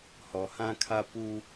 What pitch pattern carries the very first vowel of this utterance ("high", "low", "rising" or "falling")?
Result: low